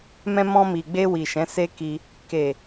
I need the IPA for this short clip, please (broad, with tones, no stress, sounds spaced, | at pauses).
m ɛ̃˧ m ɔ̃˧ m i˨ ɡ͡b e˧ w i˨ ʃ ɛ̃˨˦ s e˦ k i˧ | k e˨